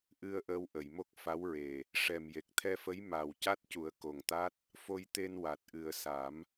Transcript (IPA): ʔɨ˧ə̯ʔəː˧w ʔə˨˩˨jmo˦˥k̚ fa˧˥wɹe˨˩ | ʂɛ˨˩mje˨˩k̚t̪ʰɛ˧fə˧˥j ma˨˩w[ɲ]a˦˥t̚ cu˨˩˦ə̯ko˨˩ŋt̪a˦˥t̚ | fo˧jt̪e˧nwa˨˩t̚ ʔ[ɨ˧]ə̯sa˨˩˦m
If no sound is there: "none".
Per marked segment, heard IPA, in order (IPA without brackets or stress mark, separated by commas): c, ɨ˨˩